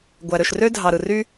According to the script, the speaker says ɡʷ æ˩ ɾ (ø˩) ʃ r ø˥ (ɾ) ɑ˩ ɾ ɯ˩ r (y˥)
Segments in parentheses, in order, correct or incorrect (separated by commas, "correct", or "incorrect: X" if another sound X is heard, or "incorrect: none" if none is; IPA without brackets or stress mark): correct, incorrect: dʱ, correct